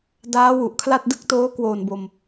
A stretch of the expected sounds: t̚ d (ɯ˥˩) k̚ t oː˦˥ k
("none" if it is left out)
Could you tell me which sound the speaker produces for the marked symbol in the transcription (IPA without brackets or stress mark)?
ɯ˥˩